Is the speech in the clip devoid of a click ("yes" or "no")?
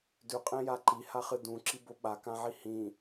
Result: no